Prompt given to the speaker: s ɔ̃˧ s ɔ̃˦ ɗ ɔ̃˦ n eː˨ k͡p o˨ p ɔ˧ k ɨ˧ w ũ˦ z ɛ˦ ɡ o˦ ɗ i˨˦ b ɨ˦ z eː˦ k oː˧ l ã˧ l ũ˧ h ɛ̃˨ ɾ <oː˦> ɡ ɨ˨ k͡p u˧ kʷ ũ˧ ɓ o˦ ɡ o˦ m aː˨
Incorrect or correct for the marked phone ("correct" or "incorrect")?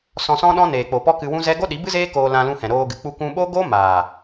incorrect